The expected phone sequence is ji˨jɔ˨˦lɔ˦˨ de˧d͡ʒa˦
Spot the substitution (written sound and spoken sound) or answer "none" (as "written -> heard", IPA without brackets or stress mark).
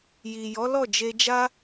d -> d͡ʒ